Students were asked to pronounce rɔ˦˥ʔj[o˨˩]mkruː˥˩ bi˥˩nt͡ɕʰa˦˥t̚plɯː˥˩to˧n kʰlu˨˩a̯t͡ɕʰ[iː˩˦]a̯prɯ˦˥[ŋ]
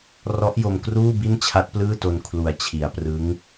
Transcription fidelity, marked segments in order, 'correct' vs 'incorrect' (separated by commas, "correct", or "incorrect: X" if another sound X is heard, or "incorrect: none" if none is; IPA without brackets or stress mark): incorrect: o˧, incorrect: i˩˦, correct